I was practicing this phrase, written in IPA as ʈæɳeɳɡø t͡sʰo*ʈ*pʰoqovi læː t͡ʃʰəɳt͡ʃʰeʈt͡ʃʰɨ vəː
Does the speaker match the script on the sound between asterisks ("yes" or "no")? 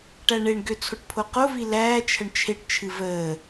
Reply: yes